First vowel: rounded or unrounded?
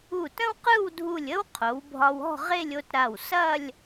rounded